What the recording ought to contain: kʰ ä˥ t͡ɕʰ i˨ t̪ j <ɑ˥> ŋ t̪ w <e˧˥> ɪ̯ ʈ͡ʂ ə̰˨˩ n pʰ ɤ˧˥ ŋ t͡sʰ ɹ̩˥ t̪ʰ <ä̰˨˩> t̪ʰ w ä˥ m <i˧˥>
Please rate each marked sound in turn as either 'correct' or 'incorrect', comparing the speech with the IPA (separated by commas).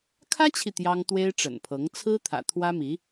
correct, incorrect, correct, correct